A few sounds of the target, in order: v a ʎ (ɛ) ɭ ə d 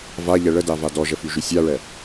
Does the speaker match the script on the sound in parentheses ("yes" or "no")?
yes